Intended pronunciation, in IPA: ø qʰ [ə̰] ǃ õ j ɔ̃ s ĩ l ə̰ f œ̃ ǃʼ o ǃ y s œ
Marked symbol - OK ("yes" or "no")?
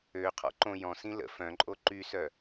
no